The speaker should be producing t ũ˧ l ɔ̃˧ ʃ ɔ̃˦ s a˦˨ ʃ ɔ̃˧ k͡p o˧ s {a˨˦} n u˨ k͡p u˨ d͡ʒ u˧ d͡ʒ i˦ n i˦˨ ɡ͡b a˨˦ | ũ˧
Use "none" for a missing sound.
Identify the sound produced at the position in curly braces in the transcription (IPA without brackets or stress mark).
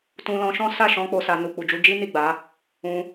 a˧